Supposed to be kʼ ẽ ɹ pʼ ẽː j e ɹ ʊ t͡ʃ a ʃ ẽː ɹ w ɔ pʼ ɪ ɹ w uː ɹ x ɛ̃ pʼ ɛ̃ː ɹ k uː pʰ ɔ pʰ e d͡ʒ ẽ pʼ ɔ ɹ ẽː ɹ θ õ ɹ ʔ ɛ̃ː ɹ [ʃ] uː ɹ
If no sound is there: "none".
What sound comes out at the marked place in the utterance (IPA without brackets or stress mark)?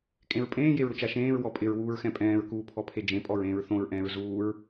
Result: z